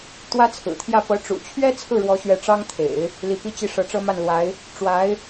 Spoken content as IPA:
t̪ w ä˥ t͡sʰ ɹ̩˨˩ t̪ʰ j ä˥˩ p ɤ˧˥ ʈ͡ʂ ṵ˨˩ t͡ɕʰ ɥ ɛ˥ t͡sʰ ɹ̩˥˩ ɻ w ɔ˧˥ ɕ ɥ ɛ˧˥ ʈ͡ʂ ɑ˥ ŋ t̪ʰ ḛ˨˩˦ ɪ̯ | l i˧˥ p i˥˧ t͡ɕ i˥˩ ʂ ɤ˧˥ ʈ͡ʂ ɤ˥ m a˥˩ n l w a˧˥ ɪ̯ | ʈ͡ʂ w a˧˥ ɪ̯

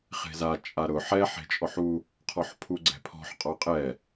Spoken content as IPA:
χ e̤ z a t͡ʃʼ a ɾ ʊ ħ ɛ ħ e̤ t͡ʃʼ ɔ ħ u | qʰ ɔ ħ pʰ u ɡ͡ǀ ɛ̤ pʰ ɔ̤ ħ qʼ ɔ qʼ ɛ

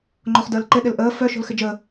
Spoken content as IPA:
ŋ͡ǃ o χ d əː l ǃ ɪ ɗ ɪ l ʔ əː f œ ʃ o̤ l x ɪ d͡ʒ əː

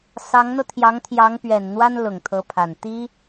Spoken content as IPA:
s ɑ˧˥ ŋ n̪ ɤ˧ t̪ʰ j ɑ˧˥ ŋ t̪ʰ j ɑ˧˥ ŋ p ɥ ɛ˨˩ n n̪ w a˥ n l ʊ˨˩ ŋ t̪ʰ ɤ˧˥ pʰ a˨˩ n t̪ i˥

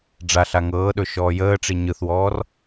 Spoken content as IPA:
ɖ͡ʐ a ɬ a ŋ ɤː ɗ ɵ ʃ ɔː j əː ʈ͡ʂ i ɲ ɯ θ w ɔː r

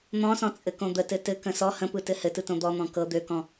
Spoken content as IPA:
n̪ ɔ̃ s ɔ̃ t͡sʼ ɘ k õ d̪ ə t ɘ t ɘ k ə̃ s ɔ h ə̃ p ɯ t ɘ h ɘ t ɯ t õ d̪ ɔ n̪ ɔ̃ k ɤ d̪ ø k ɔ̃

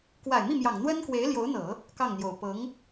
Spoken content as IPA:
k w a˨˩ ɪ̯ m i˥˩ m j ɑ˨˩ ŋ n̪ w ə˥ n k w e˧˥ ɪ̯ l j o˧˥ ʊ̯ n̪ ɤ˨˩˦ | k ɑ˥˩ ŋ n̪ j o˨˩ ʊ̯ p ɤ˧˥ ŋ

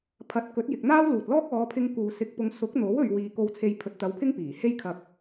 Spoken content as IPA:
pʰ ɐ˨˥ t̚ k ɵ˨˥ t̚ j ɪ˨ k̚ n̪ aː˥ w l uː˨ t̚ l ɔː˥ k̚ ɔː˨˧ pʰ ɪ˧ ŋ k uː˨ s ɪ˧ k̚ p ʊ˧ ŋ s ʊ˨˥ k̚ n̪ o˨˥ w ɵ˧ ɥ w iː˨ k o˧ w t͡sʰ e˧ j pʰ ɵ˨˥ t̚ t̪ ɐ˨˥ w pʰ ɪ˥ ŋ p iː˨˩ h e˥ j kʰ ɐ˨ k̚

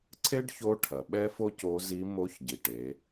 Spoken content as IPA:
ǀʰ e˥ ɖ ç o˧˥ ʈʰ ɐ˩ ɓ ɛ˥ f o˥ c o˧˥ z i˧˥ m o˧˥ ç ɟ i˩ ʈ e˩˧

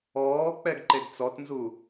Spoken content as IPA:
ɔː k͡p ɛ ɡ ǃ e ɡ t͡s ɔ t n z u

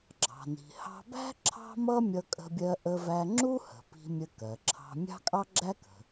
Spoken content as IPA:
ɡ͡ǁ ɑ̤˩ n i̤˩ h ɑ̤˧ b æ̤˥ ǁʰ ɑ̤˥ m ʌ˥ mʲ ʌ˧ kʼ ə̤˧ bʲ ɜ˧ ʔ ə˧ v æ˧ ŋ͡ǁ u˥ h ə̤˩ p i̤˧ mʲ ə˧ k ɜ˩ ǁʰ ɑ̤˧ mʲ ɑ̤˥ kʼ ɑ˥ ɡ͡ǁ æ˥ k ə̤˩

